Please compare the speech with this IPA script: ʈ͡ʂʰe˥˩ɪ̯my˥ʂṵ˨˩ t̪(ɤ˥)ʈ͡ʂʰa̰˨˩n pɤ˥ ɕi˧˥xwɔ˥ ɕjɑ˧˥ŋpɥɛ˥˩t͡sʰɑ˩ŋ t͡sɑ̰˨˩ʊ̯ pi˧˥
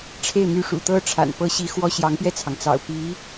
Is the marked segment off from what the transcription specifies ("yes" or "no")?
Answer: no